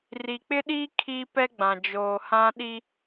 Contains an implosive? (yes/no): yes